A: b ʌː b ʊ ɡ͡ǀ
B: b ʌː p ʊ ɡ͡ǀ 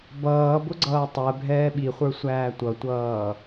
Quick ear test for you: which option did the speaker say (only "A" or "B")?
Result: A